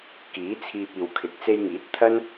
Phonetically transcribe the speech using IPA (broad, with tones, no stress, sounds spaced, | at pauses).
k iː˨˥ t͡sʰ iː˧ p̚ iː˨ w kʰ ɪ˨˥ k̚ t͡s e˧ j ŋ iː˨˥ t̚ t̪ʰ ɐ˥ n